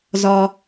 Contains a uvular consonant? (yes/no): no